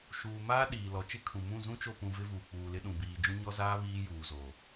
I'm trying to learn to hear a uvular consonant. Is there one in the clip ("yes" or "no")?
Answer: no